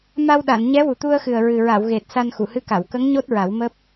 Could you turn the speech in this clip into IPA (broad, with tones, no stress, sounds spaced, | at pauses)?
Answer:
m a˧ w ɗ a˨˩˨ n ɲ ɛ˧˥ w u˨˩ t̪ u˧ ə̯ x ɨ˨˩ ə̯ ɹ ɨ˨˩ ɹ a˨˩˨ w ɣ e˨˩ t̚ s a˧ n x u˨˩˨ h ɨ˧˥ k a˨˩˨ w k ə˧˥ ŋ ɲ o˦˥ t̚ ɹ a˨˩˦ w m əː˦˥ p̚